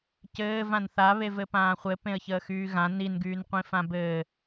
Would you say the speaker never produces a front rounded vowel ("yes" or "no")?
no